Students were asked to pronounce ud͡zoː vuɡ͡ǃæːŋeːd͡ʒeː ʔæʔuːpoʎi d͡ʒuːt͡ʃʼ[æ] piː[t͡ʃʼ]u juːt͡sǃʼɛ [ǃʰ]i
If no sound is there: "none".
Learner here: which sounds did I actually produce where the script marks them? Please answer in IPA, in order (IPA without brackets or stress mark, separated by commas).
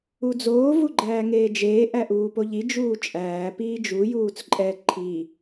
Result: æː, d͡ʒ, ǃʰ